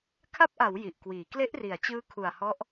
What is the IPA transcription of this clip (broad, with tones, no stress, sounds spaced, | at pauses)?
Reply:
kʰ a˦˥ p̚ ʔ a˩˦ w j i˨˩ ʔ k w iː˩˦ k l e˦˥ ʔ r i˩˦ a̯ t͡ɕ ɯː˦˥ kʰ u˨˩ a̯ h ɔ˦˥ ʔ